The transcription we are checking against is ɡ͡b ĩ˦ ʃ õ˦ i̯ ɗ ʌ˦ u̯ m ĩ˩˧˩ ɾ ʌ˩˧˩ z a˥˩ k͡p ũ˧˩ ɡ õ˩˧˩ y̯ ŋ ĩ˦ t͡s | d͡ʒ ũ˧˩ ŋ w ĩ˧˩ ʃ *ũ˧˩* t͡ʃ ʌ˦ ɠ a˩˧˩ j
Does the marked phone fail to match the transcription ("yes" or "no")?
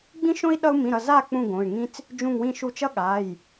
yes